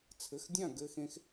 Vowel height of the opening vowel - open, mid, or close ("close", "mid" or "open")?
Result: mid